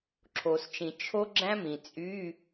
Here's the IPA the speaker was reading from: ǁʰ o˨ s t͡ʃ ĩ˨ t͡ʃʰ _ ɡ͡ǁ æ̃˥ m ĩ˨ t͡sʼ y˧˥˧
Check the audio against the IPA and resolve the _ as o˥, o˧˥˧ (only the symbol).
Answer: o˥